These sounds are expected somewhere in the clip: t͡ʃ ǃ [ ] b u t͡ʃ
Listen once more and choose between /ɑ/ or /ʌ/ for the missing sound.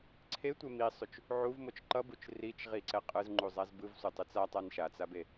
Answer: ʌ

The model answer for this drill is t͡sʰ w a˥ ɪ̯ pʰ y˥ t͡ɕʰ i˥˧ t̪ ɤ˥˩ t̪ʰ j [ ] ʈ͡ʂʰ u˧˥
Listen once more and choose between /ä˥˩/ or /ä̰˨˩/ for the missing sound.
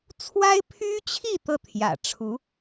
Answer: ä̰˨˩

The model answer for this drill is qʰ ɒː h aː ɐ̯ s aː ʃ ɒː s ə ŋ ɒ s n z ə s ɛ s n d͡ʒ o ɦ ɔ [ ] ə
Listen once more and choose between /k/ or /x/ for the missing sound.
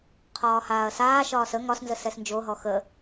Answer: x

